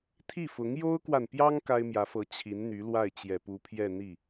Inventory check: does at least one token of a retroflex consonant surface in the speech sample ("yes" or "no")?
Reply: no